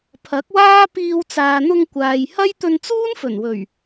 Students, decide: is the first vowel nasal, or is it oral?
oral